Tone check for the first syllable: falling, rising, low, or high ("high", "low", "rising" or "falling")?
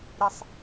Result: high